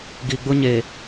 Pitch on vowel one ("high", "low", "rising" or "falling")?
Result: low